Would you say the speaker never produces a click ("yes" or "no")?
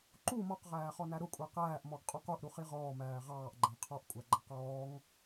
no